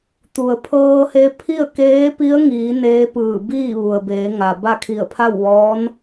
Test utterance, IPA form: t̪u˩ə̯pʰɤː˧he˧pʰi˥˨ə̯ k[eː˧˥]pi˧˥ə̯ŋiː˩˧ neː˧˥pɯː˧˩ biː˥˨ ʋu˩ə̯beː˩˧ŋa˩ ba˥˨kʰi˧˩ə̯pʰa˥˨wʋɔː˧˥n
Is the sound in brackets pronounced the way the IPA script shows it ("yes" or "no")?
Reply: yes